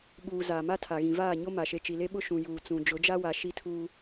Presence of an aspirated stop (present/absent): present